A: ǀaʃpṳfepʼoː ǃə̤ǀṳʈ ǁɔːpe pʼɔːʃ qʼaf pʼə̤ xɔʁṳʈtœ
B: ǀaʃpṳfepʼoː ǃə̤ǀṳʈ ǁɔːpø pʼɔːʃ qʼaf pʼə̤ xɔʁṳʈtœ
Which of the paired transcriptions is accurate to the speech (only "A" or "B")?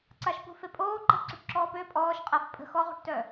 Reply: B